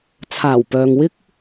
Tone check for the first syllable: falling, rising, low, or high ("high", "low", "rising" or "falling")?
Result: low